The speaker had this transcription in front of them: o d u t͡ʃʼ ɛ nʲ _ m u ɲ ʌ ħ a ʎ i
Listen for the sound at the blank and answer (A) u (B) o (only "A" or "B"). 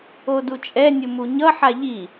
A